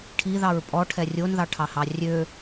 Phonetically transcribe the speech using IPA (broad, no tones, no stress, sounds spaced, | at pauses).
ʈʰ i ð ɑ ɹ pʼ ɔ ʈʰ ɛ rʲ o n ð ɑ ʈʰ ɑ h ɑ rʲ ø